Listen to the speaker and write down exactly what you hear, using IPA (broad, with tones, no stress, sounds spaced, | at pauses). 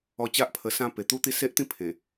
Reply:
ɔ˧ t͡ɕ a˦ ʔ pʰ ə˧ s ã˦ p e˨˩ t̪ u˦ t̪ i˦ s e˦ ʔ t̪ ĩ˥˧ pʰ ẽ˨˩